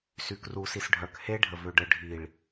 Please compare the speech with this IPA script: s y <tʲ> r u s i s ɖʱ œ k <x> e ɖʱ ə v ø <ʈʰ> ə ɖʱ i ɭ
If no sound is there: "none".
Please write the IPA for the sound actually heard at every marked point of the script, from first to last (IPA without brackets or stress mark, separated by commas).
k, h, ɖ